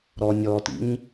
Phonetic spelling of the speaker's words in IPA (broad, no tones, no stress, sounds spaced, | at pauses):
ɾ ɔ nʲ ɔ t ḭ ɲ